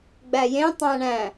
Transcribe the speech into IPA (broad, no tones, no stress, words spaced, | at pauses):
ɡ͡bæjẽtˤæ̃ ɳæ̃